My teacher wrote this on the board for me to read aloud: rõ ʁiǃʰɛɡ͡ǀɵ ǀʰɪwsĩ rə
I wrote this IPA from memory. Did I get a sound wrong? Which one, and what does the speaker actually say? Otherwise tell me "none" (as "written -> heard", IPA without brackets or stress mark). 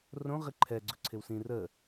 none